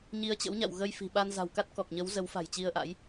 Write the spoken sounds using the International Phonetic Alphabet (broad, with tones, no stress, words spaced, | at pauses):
ɲi˨˦ə̯t͡ɕə̰˧˥wɲa̰˧˨w ɣə˧jfi̤˨˩ɓa˧n za̤˨˩wka˦˥t̚ kɔ˨˩k̚ɲə˨˦w zə˨˦wfa̤˨˩jt͡ɕi˧ə̯ʔa̰˧˥j